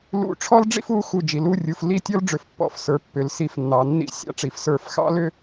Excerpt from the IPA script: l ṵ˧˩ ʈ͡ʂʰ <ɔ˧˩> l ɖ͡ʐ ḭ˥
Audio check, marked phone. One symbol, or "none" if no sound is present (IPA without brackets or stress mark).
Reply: ɔ˥